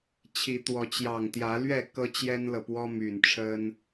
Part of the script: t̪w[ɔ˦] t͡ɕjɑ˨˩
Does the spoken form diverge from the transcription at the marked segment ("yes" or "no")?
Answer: yes